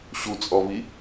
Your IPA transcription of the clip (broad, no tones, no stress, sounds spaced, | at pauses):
ɕ u t͡sʼ ɔ v i